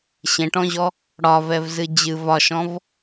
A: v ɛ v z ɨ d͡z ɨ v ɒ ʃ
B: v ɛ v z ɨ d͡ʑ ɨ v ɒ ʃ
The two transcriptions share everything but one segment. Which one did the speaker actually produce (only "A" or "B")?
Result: B